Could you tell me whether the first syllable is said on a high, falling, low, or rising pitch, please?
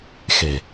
low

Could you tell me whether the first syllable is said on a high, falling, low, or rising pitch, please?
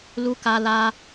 high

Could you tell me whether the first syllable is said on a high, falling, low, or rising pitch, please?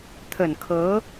low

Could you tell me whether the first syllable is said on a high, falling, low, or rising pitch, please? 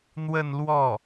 falling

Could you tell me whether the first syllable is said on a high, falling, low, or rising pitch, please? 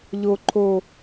low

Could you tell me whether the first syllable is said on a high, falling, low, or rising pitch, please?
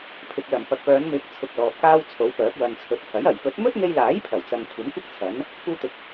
low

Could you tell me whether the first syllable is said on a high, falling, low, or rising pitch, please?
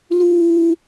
high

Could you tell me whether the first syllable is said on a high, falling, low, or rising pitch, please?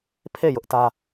falling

